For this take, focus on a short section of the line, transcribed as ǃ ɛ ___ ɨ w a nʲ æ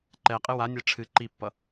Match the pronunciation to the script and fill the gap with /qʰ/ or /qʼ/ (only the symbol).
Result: qʼ